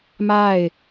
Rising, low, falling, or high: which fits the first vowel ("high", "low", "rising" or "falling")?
falling